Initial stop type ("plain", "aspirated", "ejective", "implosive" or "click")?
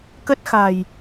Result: plain